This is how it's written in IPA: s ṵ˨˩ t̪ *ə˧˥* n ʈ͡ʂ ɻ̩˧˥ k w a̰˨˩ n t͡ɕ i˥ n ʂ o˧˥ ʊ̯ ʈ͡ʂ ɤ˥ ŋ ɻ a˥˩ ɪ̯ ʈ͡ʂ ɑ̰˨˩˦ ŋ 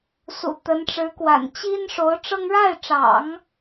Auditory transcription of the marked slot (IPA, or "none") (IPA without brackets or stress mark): ə˧˥